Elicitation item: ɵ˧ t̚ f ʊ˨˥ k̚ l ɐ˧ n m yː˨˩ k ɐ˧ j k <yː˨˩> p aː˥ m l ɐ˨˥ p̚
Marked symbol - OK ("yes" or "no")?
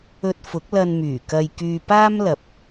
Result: no